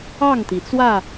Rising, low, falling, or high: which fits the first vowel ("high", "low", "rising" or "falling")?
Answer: falling